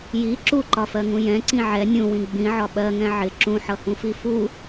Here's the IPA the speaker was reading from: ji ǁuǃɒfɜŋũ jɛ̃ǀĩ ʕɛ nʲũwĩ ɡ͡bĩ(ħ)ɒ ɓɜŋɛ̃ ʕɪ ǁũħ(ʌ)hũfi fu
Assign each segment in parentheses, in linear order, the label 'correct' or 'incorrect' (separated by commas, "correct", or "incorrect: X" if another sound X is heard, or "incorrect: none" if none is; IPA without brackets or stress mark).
incorrect: ʕ, correct